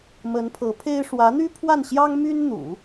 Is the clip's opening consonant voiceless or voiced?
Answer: voiced